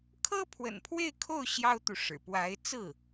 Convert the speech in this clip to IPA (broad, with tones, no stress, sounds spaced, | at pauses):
kʰ ɤ˥ pʰ w ə̰˨˩ n pʰ w e˥˧ ɪ̯ kʰ o˥˩ ʊ̯ ɕ j ɑ˥ ʊ̯ t̪ u˨ ʂ ɻ̩˨˩ p w a˧˥ ɪ̯ t͡s ɹ̩˥˩